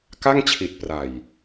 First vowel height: low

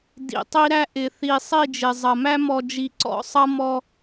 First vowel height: high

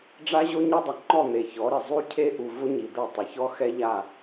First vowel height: low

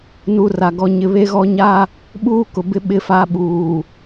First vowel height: high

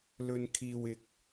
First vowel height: mid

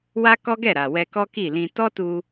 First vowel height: low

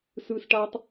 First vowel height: high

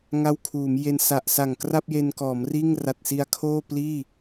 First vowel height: low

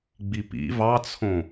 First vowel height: high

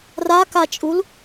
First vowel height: low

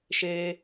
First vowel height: mid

